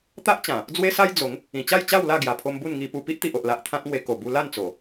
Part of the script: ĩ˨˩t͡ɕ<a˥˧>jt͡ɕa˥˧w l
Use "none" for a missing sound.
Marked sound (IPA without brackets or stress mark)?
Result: a˥˧